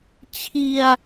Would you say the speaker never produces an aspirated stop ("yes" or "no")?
no